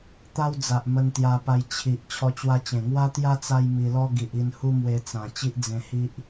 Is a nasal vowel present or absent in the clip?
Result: present